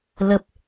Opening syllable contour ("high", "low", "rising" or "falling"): high